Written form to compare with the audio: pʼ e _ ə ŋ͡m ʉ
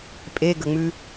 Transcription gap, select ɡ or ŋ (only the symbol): ɡ